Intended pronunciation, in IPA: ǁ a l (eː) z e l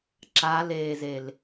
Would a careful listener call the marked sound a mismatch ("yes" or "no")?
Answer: no